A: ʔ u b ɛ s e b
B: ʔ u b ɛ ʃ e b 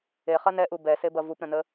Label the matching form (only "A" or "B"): A